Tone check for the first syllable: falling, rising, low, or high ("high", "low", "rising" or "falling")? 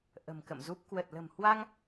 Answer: low